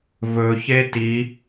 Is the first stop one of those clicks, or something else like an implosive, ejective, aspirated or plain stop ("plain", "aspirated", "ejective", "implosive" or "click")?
plain